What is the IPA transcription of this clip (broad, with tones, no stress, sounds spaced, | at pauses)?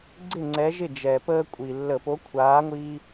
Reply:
ɡ͡ǀ ɪ˥˩ ŋ͡ǀ ɛ˨˥ ʒ ɪ˥˩ d͡ʒ ɛ˨˩ p əː˦ kʷʼ i˨˩ lː ə˧˩˧ p o˨˥ kʷʰ aː˨˥ ŋʷ iː˦